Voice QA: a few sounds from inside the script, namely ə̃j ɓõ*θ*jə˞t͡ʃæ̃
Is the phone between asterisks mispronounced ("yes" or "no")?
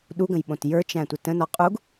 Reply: yes